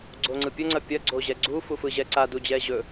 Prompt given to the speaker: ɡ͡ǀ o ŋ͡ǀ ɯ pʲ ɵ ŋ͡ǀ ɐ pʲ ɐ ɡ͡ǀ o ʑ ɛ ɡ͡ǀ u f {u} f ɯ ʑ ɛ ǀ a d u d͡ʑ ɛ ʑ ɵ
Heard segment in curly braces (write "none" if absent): u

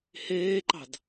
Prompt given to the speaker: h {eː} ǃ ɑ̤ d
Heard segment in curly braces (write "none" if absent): eː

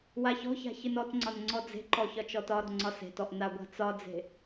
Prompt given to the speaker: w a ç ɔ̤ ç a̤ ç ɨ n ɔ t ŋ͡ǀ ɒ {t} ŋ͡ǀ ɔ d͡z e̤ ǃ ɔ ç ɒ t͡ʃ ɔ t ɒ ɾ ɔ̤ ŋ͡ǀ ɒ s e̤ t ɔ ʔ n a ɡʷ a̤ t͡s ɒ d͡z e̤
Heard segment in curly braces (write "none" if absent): n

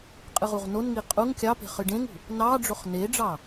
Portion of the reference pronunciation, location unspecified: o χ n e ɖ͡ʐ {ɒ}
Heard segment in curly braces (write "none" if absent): ɑ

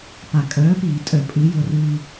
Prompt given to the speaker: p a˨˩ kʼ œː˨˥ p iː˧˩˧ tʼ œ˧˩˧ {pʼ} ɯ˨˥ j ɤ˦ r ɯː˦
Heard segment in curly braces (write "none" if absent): pʼ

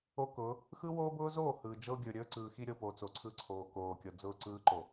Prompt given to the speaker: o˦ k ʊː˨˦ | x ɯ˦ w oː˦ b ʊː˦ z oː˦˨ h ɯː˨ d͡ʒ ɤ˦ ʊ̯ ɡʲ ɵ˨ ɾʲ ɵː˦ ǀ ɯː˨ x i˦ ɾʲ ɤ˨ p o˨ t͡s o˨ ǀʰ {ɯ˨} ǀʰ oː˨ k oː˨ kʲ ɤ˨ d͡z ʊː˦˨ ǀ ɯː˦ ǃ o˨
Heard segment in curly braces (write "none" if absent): ɯ˦˨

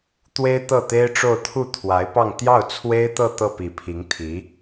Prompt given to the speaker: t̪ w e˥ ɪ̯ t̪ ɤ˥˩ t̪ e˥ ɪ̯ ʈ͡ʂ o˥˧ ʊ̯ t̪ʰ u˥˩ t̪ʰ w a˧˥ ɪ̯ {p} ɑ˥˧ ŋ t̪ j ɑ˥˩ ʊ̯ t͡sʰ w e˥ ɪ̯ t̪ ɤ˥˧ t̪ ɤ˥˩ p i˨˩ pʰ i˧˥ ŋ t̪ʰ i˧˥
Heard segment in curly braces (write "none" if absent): p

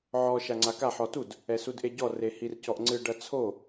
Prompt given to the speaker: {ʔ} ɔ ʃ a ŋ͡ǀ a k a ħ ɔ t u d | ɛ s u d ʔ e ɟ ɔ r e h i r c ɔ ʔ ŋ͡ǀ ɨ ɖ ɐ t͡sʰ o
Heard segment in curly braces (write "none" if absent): ʕ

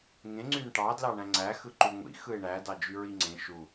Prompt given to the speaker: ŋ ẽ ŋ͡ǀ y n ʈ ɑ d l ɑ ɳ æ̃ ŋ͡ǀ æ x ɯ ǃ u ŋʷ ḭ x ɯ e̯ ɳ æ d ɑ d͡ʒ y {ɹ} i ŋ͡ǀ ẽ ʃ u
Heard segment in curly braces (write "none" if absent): ɹ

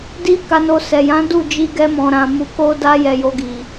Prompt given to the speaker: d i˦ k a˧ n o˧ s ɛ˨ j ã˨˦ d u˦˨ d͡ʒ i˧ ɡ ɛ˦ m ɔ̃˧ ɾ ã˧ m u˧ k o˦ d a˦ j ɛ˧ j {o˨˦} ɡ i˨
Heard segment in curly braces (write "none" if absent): o˧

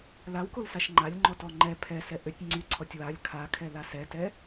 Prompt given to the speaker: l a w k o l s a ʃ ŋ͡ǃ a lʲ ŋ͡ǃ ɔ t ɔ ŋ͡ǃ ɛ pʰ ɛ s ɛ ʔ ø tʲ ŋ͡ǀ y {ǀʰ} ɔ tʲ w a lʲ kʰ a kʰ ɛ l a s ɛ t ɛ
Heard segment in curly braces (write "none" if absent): ǀʰ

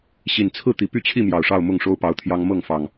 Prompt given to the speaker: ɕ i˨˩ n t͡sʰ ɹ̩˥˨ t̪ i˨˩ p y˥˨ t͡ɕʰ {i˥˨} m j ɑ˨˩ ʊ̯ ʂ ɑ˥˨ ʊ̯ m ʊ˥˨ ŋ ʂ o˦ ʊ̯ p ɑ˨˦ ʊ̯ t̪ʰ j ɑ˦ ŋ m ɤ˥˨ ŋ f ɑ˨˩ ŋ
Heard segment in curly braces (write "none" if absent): i˥˨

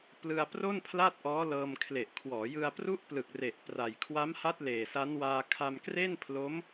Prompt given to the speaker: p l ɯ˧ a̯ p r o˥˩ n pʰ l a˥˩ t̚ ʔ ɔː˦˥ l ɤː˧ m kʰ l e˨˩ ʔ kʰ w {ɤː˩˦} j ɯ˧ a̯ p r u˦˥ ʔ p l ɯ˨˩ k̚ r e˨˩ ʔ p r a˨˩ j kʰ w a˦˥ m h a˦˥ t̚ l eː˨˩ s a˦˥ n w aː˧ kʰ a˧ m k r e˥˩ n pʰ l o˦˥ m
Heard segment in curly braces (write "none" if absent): ɔː˩˦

